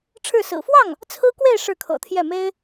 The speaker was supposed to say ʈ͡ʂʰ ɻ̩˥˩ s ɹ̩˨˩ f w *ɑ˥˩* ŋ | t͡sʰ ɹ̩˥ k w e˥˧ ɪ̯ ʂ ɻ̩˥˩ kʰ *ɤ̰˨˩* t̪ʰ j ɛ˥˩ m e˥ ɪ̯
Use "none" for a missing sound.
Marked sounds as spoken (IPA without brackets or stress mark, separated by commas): ɑ˥˩, ɤ̰˨˩